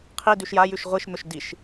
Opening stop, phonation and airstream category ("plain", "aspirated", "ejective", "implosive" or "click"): aspirated